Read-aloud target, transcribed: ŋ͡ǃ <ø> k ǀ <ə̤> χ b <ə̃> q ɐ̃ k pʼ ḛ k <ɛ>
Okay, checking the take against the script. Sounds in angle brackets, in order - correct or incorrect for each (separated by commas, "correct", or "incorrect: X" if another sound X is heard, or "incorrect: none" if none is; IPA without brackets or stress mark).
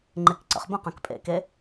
incorrect: e, incorrect: ə̰, correct, incorrect: e